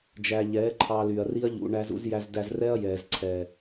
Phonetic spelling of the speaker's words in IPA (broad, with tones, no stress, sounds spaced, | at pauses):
d͡ʒ æ˧ ʎ ɛː˨˦ ǃʰ ɑ˧ l y˨ ɐ̯ r i˦ ɐ̯ ʎ ṵ˧ ɳ æ˧ z ṵ˧ z j æ˧ z d æ˧ z r ɛ˦ ɐ̯ j ɛː˨ z ǀʰ ɛː˨